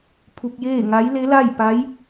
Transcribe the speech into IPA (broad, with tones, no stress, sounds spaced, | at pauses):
pʰ u˧ k̚ j eː˥˨ ŋ a˧˥ j l e˧˥ l a˥˨ j p a˧˥ j